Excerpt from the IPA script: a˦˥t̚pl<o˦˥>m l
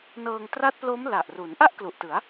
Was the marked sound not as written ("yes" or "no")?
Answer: no